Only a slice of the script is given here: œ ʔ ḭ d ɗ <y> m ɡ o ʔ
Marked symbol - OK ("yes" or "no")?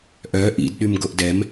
yes